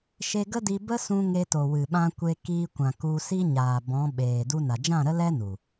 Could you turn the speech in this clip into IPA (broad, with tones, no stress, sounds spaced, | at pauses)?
ʃ e˧ ɡ ə˦ d i˧ b ə˦ s ũ˧ ŋ e˧ t o˨ w ɨ˨ ɓ ã˧ kʷ e˧ k iː˧ kʷ ã˨ k u˧ s i˦ ɲ aː˨ b ɔ̃˨˦ ɓ eː˨ d u˧ n a˨ d͡ʒ ã˦˨ ɾ ə˦ l ɛ˦ n u˨